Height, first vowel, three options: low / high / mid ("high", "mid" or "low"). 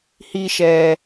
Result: high